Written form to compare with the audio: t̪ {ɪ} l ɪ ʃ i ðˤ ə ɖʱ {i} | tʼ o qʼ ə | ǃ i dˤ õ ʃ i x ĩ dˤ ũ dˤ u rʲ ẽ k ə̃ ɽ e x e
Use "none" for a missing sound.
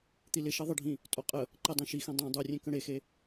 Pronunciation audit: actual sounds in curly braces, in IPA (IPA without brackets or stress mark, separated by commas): i, ĩ